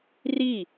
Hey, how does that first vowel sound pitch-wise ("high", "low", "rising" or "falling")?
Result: falling